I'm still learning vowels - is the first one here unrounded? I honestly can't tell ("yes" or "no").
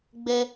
yes